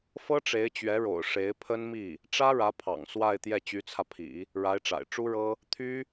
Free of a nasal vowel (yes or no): yes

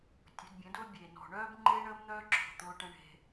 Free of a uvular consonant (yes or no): yes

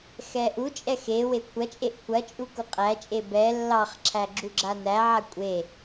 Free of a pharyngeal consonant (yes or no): no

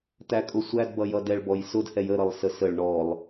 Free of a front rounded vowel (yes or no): yes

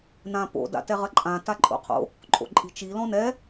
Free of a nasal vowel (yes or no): no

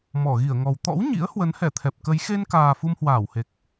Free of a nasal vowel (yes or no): yes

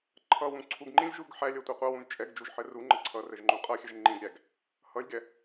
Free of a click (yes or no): no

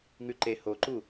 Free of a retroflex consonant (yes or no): yes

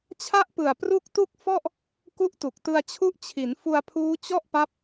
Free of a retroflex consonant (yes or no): yes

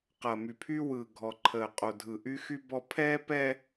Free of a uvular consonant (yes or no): no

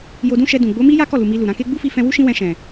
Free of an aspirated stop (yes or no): yes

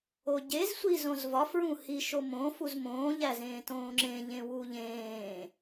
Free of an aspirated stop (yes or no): yes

